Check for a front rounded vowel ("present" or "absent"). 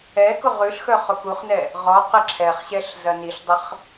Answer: present